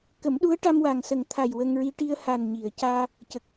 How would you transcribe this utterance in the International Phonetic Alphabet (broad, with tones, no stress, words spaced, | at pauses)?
kə˨˩˦mɗu˧˥ə̯ʈa˧m wa˨˩ŋsə˨˩ŋt̪ʰa˨˩j wə˧ŋɹi˧ ʈi˧ə̯ha˨˩nɲi˨˩˨ə̯caː˧ | cə˨˩k̚